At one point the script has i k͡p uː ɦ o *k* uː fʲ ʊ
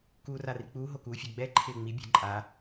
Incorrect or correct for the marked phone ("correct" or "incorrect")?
correct